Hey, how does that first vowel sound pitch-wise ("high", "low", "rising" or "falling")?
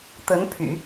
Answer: rising